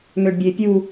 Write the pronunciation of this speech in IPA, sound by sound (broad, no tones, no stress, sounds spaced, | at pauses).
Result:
ŋ ø ɖ bʲ e pʲ u